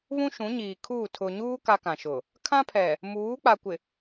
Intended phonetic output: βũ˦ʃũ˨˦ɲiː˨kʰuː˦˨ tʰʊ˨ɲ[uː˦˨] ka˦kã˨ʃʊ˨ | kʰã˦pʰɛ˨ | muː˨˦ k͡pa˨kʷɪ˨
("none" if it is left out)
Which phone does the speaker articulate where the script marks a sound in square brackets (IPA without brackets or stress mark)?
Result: uː˦